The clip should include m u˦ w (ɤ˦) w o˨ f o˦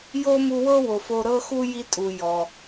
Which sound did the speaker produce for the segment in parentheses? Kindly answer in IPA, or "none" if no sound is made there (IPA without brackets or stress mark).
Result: ɤ˥